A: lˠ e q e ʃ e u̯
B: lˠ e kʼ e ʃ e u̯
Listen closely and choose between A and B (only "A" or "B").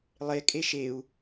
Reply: B